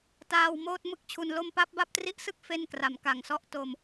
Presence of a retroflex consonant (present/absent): absent